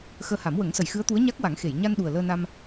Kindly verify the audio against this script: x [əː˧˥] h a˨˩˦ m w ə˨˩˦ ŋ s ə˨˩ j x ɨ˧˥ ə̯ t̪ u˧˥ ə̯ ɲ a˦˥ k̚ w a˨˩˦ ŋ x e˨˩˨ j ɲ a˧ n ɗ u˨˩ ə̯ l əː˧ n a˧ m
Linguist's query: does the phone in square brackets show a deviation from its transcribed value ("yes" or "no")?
yes